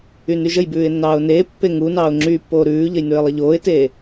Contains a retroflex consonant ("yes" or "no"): no